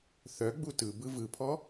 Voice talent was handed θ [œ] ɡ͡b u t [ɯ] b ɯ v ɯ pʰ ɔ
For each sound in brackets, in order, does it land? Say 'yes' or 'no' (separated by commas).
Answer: yes, yes